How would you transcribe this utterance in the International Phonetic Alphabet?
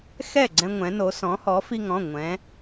xɛ˥˩ɡ͡ǀɛ̃˧ŋʷɛ̃˩˧ no˩˧ sɔ̃˩˧hɔ˩˧ fi˧ŋɔ̃˩˧˩ ŋʷɛ̃˩˧

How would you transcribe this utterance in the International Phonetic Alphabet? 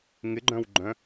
ŋɪɡ͡ǃœ̃wɡ͡ǃœ̃

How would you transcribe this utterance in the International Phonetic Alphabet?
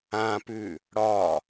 ãpʉ | ɽɒ

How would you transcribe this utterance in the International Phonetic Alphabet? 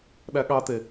ɗæɠɑte

